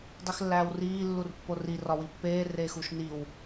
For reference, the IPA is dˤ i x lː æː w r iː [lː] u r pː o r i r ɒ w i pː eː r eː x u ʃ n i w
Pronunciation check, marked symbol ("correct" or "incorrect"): correct